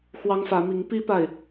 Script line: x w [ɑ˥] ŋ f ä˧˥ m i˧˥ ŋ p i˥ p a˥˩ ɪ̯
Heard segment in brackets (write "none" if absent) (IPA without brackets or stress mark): ɑ˥